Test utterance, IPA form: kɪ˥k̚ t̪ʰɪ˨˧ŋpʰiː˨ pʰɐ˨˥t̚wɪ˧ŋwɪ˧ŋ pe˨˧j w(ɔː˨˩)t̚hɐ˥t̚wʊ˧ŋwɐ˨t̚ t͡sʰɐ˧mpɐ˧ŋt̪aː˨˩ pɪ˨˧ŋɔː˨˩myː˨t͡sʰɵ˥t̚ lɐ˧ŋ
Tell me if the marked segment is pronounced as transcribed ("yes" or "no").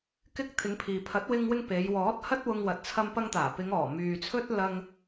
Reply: no